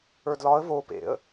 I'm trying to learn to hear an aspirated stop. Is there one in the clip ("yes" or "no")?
no